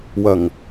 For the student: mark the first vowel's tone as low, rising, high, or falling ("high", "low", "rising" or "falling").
low